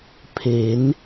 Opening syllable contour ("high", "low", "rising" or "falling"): rising